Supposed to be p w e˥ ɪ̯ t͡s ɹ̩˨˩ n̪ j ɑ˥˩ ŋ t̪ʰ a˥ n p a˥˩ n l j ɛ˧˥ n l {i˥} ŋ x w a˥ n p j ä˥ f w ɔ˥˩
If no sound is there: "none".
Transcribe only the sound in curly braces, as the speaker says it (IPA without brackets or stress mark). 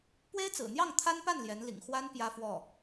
ḭ˨˩